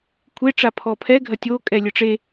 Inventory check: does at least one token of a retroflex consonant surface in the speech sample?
yes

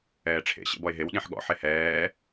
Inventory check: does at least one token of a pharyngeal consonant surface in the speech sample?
yes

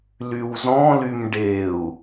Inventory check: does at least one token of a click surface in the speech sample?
no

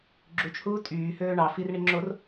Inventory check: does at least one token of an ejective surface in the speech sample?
yes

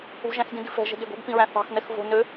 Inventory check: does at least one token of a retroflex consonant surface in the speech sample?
no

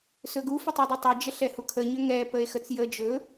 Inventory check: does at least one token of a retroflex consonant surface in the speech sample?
no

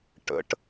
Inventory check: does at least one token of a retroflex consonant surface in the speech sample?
yes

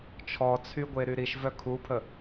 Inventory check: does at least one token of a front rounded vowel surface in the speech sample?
yes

